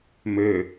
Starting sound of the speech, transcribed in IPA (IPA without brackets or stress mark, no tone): m